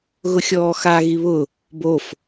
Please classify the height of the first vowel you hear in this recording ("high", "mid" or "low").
high